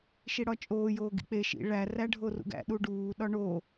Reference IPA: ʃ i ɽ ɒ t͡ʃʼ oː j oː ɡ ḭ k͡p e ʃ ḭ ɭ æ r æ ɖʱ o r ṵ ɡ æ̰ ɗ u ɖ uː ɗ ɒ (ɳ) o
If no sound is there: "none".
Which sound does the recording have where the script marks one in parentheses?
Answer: ɳ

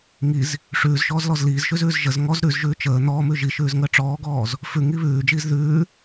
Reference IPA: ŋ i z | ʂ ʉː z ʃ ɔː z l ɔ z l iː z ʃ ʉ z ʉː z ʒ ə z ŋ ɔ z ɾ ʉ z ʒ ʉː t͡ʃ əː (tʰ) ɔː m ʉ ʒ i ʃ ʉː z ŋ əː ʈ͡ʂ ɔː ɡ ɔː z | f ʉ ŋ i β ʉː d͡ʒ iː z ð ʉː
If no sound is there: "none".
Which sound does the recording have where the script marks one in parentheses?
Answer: n̪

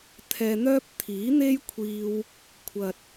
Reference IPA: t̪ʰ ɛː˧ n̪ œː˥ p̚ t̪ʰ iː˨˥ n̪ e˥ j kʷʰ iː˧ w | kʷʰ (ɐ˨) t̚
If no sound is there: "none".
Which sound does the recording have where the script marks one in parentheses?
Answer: ɐ˨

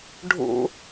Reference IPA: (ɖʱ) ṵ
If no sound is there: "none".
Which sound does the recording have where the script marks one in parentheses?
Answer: ɖʱ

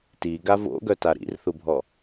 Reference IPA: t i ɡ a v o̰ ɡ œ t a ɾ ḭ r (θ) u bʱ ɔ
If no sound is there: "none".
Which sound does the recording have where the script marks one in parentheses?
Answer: θ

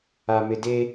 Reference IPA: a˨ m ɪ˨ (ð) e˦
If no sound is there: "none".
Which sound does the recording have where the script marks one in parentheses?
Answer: d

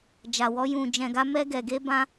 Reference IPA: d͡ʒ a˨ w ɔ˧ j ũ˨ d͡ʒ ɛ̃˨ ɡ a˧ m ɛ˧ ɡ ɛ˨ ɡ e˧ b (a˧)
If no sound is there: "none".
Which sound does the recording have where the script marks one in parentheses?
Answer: ã˧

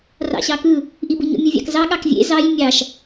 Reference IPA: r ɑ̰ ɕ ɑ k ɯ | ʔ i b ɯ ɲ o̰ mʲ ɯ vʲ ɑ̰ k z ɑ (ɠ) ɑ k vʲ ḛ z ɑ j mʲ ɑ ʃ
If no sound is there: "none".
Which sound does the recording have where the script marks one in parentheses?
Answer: ɠ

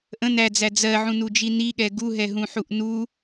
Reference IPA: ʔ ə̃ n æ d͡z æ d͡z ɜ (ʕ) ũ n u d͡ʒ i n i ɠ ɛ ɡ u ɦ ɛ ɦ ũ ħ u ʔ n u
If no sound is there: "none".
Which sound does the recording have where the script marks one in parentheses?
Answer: ʕ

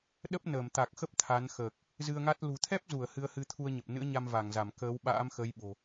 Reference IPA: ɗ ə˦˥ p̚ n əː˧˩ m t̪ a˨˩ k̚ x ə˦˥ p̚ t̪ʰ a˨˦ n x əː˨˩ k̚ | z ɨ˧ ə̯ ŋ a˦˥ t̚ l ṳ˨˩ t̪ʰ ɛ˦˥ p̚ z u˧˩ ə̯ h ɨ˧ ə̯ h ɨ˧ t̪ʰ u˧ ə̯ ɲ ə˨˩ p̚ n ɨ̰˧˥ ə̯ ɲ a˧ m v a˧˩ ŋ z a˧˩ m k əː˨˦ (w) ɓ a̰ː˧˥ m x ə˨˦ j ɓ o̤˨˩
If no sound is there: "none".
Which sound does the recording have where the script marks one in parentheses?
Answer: w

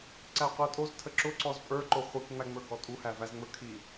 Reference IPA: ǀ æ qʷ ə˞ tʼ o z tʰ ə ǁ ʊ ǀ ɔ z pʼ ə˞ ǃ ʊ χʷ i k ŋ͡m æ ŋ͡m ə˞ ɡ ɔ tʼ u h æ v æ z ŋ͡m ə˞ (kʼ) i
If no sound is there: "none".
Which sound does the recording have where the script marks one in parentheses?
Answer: kʰ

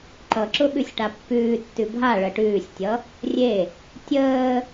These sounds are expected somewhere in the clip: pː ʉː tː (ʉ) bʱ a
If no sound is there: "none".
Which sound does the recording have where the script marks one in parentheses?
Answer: ʉ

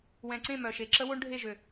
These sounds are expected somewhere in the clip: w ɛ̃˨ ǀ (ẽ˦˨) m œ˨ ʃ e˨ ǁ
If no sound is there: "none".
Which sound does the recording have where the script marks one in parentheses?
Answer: ẽ˦˨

